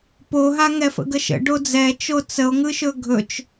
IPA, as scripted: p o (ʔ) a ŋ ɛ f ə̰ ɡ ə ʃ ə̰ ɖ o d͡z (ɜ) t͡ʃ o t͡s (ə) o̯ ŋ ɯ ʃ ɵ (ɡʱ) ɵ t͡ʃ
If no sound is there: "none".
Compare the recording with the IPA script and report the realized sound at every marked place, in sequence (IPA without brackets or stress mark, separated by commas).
ɦ, ɛ, ə, ɡʱ